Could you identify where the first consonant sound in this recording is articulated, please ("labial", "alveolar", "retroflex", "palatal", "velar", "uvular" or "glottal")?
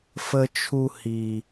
labial